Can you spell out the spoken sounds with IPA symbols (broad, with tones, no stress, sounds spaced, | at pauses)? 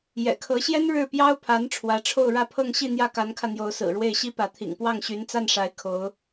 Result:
j ɛ̰˨˩ kʰ ɤ˧˥ ɕ j ɛ˥ n ɻ ɻ̩˥˩ p j ɑ˥ ʊ̯ pʰ a˧˥ n ʈ͡ʂʰ w ä˧˥ ʈ͡ʂʰ o˥˧ ʊ̯ ɻ ä˥˧ pʰ ɤ˥˧ ŋ ɕ i˥˧ n̪ j ä˥˩ k a˧˥ n kʰ ä˧ n̪ j o˧˥ ʊ̯ s ɹ̩˨˩ ɻ w e˥˩ ɪ̯ ɕ i˥ p ä˧˥ t̪ʰ ḭ˨˩ ŋ p w ɑ˥˩ ŋ ɕ y˧˥ n t͡s a˥˩ n ʂ a˧˥ ɪ̯ kʰ o˧˥ ʊ̯